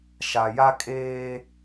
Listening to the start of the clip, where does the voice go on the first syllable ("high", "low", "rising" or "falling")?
low